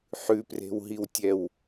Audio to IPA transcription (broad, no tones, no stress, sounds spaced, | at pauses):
ħ ʉ p r e̤ w ɦ i w tʲ ɛ w